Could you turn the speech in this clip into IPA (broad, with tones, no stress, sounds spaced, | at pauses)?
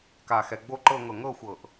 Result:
k a˨˩ x ɛ˨˩ ɡ͡b o˦˨ ǃ ɤ˦˨ ŋ ɤ˨˩ ŋ ɤ˦˨ xʷ ɤ˨˩ ʔ